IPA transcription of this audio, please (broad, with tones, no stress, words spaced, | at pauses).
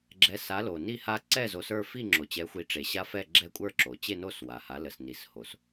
ɡ͡ǁɛ˩˥sa˩˥ lo˩ni˥˩ha˦ ǀɛ˥˩zo˩˥s ə˞˥˩fi˥˩ ŋ͡ǁo˩t͡ɕɛ˩˥xʷi˩˥ʈ͡ʂe˩ ɕa˦fɛ˥˩ ɡ͡ǁɛ˦kʷʼə˞˥˩ǁo˩ t͡ɕe˥˩no˥˩s wa˩ha˩˥ lə˩sni˩sho˩s